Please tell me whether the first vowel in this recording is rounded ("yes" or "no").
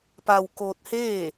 no